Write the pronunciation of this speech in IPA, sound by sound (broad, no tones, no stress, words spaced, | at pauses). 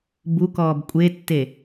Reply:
bukɔːb kʷʼetːe